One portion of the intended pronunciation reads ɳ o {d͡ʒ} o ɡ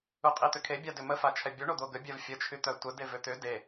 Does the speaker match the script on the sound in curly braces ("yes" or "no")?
no